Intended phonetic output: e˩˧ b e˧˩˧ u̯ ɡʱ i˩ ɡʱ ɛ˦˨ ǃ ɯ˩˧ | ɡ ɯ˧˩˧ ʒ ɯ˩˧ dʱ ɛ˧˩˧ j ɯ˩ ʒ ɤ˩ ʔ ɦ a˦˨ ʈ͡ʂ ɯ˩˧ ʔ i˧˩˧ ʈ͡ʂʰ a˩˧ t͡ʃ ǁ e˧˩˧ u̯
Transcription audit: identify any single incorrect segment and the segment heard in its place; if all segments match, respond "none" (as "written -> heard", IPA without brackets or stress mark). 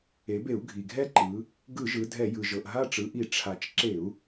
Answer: none